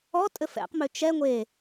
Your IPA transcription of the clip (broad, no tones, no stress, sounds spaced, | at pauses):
ɔ tʼ ɘ f ɛ̰ q m ø t͡ʃ ɛ ŋʷ e